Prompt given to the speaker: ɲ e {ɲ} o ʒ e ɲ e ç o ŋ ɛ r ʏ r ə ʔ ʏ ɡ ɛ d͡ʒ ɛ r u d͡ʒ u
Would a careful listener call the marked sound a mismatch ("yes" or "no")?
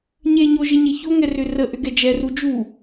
no